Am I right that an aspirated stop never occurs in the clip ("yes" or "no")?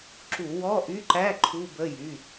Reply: no